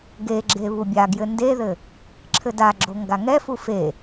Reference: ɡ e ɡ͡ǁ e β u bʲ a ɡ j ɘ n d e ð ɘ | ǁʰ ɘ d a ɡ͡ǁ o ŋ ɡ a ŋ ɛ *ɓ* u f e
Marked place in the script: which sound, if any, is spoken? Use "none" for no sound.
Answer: f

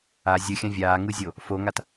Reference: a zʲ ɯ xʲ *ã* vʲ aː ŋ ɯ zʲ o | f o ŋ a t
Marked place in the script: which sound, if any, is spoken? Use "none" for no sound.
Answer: ã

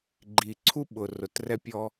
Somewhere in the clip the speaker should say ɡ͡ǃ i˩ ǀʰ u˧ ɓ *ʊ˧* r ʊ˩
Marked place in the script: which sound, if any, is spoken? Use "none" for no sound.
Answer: ʊ˩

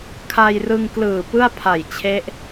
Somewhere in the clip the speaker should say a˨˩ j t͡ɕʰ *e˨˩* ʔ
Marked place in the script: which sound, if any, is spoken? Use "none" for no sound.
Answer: e˦˥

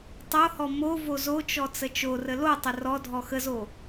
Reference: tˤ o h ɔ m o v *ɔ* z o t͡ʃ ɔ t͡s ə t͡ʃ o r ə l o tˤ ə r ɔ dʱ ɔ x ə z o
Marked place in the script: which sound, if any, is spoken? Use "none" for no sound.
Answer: o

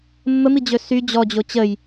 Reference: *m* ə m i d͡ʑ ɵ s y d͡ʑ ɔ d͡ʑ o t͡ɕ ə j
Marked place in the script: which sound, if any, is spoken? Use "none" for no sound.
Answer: mː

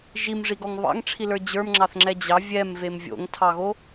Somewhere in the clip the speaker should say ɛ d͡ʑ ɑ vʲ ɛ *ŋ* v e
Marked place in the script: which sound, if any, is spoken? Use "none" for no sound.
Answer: m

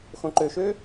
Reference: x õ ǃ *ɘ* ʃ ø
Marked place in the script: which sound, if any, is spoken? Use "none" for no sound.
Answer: ø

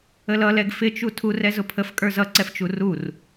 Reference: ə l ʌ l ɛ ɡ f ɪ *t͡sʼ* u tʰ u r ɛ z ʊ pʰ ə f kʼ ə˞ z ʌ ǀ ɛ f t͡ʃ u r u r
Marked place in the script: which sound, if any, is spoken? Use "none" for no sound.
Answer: t͡ʃ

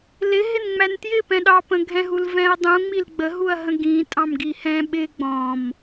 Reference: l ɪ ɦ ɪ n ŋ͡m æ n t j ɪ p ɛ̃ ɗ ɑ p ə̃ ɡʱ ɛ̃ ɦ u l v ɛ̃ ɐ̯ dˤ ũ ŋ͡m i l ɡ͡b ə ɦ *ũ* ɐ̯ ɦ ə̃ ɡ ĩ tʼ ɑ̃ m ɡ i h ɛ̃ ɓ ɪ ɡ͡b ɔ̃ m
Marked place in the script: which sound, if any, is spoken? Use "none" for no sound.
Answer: u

